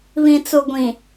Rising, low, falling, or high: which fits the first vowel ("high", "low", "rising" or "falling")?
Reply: low